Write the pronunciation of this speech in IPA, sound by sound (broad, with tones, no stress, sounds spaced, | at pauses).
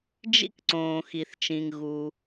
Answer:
d͡ʒ ḭ˥ k ǀ õː˩ x i˩ θ t͡ʃ ĩ˩ ŋ ɣ u˩